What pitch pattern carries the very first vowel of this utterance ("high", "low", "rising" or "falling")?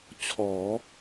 rising